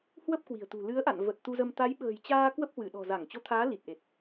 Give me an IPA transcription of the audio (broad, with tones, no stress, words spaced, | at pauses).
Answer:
hwə˦˥p̚kwi̤˨˩ə̯t̪ṳ˨˩ lɨ˨˦ə̯ʔa̰˧˨n və˨˩t̚ t̪u˧zə˧m t̪a˨˦jɓə̤ː˨˩jt͡ɕaː˧ kwə˦˥p̚hwɨ˧˩ɗɔ̤˨˩ za˧˩ŋ t͡ɕo˨˦t̪ʰaː˨˦ li˨˩t̚ʔe˨˩t̚